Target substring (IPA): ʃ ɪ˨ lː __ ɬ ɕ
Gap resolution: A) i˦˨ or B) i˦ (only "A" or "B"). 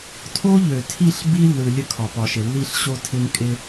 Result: A